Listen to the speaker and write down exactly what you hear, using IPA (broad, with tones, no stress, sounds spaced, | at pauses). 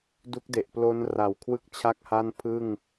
d u˦˥ k̚ d e˨˩ ʔ p l o˦˥ n r a˨˩ w kʰ w ɯ˥˩ k̚ t͡ɕʰ a˥˩ k̚ h a˥˩ n pʰ ɯ˥˩ ŋ